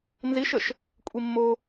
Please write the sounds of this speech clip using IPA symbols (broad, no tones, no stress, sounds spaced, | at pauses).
n z i ʃ ə ʃ | kʷʼ i mː o